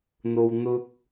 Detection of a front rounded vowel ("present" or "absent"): absent